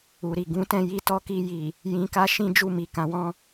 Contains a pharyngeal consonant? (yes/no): no